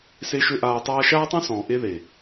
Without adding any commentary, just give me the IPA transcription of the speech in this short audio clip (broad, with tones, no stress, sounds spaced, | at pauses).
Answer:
s e˦ ʃ ø˦ ʔ aː˧ tˤ aː˦ ʃ aː˦ tˤ œ̃˦ s ɔ̃ː˨ ʔ e˦ ð e˨